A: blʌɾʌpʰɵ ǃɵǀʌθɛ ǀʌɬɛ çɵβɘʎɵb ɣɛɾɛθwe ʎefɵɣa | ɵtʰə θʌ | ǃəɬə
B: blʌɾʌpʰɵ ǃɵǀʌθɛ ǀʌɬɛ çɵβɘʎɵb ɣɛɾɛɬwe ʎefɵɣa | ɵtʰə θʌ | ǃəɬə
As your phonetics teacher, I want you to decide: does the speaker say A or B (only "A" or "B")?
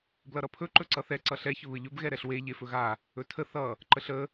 B